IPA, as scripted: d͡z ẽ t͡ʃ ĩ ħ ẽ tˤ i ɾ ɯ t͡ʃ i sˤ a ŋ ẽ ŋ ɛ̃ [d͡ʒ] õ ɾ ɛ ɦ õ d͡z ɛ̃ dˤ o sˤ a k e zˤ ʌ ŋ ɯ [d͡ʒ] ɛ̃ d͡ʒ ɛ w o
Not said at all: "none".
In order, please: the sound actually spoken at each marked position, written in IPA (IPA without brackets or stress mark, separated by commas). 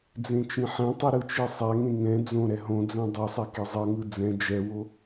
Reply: d͡z, d͡z